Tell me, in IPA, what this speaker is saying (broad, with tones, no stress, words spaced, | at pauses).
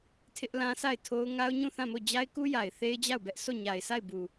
tʰɪ˦ʔlã˦sa˦˨ɪ̯tʰo˦ʊ̯ ŋa˦ʊ̯ɲũ˦˨θã˦˨mo˦˨ d͡ʑa˦ɪ̯ku˦ja˨ɪ̯ θe˦ɪ̯d͡ʑa˦˨ʊ̯bɛ˦ʔ so˦˨ɲa˨ɪ̯sʰa˦˨ɪ̯ bu˨